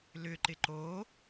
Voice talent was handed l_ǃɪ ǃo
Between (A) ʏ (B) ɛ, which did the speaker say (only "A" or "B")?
A